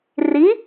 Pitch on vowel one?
rising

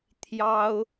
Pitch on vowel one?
high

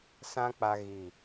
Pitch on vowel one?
high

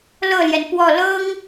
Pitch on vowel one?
falling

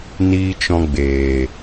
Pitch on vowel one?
low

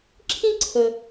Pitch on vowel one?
high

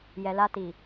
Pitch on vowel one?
low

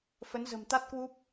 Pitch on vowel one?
rising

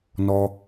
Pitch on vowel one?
high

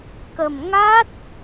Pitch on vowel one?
low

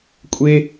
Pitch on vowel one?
high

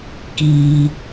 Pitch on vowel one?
high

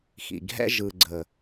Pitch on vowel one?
low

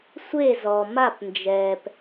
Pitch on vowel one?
falling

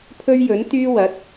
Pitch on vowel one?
high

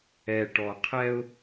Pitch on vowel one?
low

